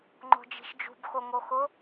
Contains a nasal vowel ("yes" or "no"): no